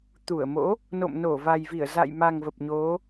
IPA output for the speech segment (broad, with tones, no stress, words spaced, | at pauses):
t̪u˧˩ə̯mo̰˧˥ | no̰˧˨mno˧˩ va˨˩jvi˧˩ə̯za̰˧˨jma˨˩ŋ və˨˩p̚ɲo˨˦